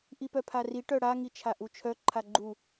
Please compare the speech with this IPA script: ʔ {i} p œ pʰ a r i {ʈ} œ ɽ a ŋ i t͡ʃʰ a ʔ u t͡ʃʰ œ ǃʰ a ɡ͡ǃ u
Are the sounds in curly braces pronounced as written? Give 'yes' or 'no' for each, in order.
yes, yes

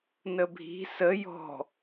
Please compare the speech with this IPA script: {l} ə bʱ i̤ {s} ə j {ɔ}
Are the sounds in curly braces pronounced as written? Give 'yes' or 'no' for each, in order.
no, yes, no

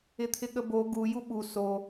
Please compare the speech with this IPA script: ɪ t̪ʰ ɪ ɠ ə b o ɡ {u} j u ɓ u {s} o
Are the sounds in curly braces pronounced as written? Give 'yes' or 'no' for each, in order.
yes, yes

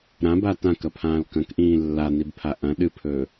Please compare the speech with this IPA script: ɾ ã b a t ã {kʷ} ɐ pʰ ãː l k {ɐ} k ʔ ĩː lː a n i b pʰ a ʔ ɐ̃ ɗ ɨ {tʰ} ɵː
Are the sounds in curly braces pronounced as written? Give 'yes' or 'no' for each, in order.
no, no, no

